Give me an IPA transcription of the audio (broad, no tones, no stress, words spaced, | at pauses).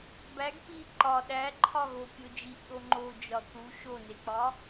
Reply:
bæɡ pi ǃɒ ɗæǃʰɒ ɣokʲo d͡ʒiʔ ɗoŋ͡ǃod͡ʒɒ θu ʃonek͡pɒ